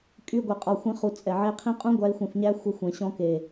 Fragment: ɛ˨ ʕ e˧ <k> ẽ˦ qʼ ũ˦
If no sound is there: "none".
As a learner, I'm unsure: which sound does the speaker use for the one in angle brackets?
qʰ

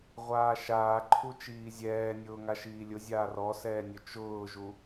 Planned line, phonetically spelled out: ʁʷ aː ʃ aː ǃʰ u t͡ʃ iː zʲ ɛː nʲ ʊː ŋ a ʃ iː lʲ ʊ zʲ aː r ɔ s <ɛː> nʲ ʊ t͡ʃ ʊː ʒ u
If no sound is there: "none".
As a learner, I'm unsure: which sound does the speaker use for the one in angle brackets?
ɛː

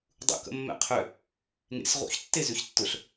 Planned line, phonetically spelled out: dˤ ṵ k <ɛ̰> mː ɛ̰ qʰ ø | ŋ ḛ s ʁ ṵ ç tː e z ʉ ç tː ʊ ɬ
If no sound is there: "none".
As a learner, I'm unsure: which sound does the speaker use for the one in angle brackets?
ə̰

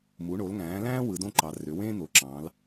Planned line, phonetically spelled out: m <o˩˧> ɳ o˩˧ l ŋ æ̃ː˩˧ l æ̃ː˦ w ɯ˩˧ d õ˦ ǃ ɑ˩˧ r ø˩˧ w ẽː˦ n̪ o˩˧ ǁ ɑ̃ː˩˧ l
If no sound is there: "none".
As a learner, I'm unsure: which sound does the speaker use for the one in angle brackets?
u˩˧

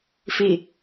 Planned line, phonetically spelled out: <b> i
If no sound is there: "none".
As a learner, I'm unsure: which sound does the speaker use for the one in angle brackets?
f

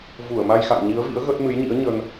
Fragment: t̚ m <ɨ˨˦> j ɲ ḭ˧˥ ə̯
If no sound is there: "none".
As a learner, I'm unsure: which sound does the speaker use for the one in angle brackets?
ɨ˨˦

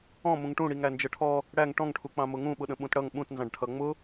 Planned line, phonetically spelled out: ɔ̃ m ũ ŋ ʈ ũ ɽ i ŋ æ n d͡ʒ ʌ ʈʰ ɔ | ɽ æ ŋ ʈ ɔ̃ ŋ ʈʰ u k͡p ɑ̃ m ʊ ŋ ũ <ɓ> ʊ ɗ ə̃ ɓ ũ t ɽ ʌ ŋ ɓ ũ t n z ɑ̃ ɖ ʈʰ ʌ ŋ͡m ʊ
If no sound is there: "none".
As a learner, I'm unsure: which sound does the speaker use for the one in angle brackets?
ɓ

